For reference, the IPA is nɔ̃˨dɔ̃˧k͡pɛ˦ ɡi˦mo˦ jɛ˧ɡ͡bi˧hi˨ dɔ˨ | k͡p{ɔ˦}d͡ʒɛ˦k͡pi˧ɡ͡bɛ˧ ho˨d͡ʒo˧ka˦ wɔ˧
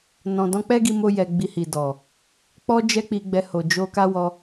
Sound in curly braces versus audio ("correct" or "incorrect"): correct